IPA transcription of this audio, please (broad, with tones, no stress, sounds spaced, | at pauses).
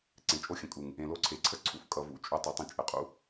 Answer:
ǀ ẽ˨ t͡ʃʼ o˦ xʲ ə̃˨ kʼ u˨ ŋ | ẽ˨ l o˧ ǀʰ e˨ ǀʰ ə˦ ǀʰ ṵ˧ f kʼ ʌ˨ v ṵ˨˦ t͡ʃʼ u˧ tˤ ə˨˦ tˤ ə̃˧ t͡ʃʼ ə˨ qʼ ṵ˦